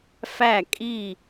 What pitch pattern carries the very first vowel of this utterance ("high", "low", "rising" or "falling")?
falling